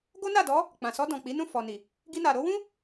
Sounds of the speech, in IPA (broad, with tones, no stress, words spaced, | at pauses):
ɡo˦na˦˨dɔ˨˦ | k͡pã˨sɔ˧dɔ̃˨ k͡pi˨˦nũ˦˨fɔ˨ ni˨ | ɡi˧na˨ɾo˨˦wũ˦